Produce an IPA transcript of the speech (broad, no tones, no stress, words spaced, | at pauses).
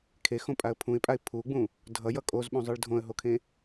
kʰexõpʼaə̯ pʰũɪ̯pʼaɪ̯ pʰuɡ͡bũ | dʱʌjʌ kʼozɓũzˤɯɭ dʱõə̯ɦokʰẽ